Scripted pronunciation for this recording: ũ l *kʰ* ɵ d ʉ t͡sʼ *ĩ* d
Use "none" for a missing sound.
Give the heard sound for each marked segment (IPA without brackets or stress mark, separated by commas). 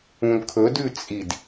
kʰ, i